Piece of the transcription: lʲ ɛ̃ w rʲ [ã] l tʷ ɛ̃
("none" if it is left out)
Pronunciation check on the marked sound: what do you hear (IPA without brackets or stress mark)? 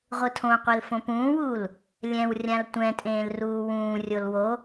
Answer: ã